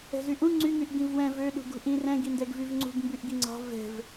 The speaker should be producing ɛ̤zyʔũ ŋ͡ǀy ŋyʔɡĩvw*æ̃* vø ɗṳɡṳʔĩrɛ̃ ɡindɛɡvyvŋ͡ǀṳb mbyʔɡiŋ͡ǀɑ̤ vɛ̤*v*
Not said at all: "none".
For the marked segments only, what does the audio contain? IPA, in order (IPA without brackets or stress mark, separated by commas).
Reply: ɛ̃, v